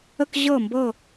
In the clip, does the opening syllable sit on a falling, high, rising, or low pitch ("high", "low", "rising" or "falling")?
falling